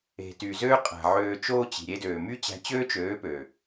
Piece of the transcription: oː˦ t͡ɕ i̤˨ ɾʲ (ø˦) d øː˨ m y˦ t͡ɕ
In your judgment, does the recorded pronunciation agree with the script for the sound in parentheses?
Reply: no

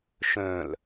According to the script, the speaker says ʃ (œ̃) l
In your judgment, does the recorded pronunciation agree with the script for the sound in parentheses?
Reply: yes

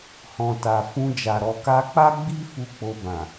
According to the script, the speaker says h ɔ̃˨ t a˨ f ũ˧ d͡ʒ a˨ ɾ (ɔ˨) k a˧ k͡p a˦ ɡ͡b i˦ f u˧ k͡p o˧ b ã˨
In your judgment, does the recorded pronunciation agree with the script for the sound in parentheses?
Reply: yes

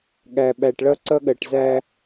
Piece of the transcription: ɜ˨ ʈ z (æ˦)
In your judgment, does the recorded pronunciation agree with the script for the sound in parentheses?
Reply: yes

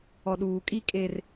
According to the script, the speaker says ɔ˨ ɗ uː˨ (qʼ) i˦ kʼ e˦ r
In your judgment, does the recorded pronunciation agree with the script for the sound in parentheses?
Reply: no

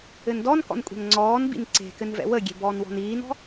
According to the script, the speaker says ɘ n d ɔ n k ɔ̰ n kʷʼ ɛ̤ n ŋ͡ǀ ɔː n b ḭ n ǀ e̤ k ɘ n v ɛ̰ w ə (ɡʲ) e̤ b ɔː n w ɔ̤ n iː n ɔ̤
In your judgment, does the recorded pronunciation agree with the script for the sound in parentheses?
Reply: yes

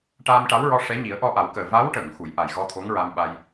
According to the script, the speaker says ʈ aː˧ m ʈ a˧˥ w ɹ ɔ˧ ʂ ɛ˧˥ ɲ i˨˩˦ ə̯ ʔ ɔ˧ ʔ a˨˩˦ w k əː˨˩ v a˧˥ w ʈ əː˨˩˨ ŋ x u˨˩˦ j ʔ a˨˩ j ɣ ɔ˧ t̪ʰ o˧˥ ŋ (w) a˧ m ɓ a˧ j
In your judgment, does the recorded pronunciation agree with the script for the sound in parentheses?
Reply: no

